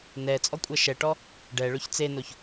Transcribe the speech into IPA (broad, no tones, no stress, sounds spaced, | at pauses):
n ɛ t͡sʼ ɔ kʷʼ ɛ ʃ ɛ ʈ ɔ | ɖ ɛ ɭ ɵ ç t͡s e n o ç